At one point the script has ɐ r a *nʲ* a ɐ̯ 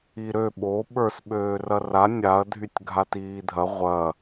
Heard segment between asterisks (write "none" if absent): nʲ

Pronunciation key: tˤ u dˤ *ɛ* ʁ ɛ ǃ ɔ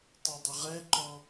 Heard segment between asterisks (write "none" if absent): ə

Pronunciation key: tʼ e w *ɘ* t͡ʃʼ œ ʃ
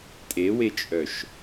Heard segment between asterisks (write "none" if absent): e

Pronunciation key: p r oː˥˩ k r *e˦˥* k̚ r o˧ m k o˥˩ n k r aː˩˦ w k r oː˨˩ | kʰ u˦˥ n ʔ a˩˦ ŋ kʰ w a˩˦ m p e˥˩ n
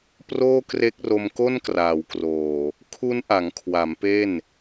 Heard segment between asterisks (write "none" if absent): e˦˥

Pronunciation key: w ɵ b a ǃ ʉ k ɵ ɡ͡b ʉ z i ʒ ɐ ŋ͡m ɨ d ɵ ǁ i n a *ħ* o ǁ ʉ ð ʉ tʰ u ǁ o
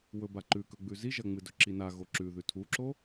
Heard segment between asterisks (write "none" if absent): ɣ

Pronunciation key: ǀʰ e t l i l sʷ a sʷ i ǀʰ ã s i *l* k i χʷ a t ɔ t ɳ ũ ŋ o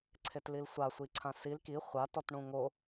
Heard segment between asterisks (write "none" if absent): l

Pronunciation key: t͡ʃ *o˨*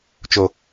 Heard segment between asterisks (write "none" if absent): o˨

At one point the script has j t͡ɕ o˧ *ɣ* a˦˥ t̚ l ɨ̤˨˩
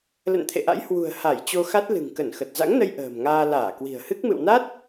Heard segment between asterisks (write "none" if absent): x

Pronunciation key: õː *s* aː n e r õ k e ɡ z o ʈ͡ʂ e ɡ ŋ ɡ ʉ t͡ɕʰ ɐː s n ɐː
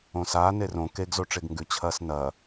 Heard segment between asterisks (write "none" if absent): s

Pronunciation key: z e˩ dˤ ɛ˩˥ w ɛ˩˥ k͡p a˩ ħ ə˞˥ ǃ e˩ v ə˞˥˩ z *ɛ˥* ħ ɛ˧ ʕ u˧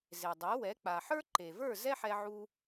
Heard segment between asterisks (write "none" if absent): ɛ˥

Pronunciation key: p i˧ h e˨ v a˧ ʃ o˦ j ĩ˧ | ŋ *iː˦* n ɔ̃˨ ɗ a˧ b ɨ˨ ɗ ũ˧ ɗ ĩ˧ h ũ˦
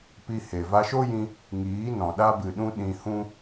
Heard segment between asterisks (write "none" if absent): iː˨˦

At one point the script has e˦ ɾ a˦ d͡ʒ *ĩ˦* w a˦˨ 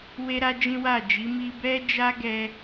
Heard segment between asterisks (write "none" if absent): ĩ˦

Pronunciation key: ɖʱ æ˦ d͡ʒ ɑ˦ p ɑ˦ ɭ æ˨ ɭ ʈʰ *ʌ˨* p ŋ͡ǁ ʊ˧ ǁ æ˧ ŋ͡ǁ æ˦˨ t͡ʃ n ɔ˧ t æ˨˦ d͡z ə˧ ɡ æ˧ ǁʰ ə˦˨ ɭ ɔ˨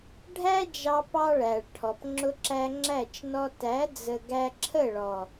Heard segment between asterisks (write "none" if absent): ɔ˨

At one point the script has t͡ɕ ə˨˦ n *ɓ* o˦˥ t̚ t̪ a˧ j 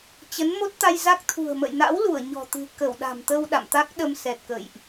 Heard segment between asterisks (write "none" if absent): m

